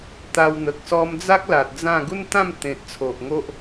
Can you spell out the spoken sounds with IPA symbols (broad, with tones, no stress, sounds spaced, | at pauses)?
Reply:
t̪ a˧ w n̪ ə˨ k̚ s ɔ˧ m d͡z a˦ k̚ l a˨ t̚ d͡z ã˥˧ ɡ u˦ n t̪ ã˥˧ m t̪ ẽ˨ t̚ t͡sʰ o˨ ʔ ŋ o˦ ʔ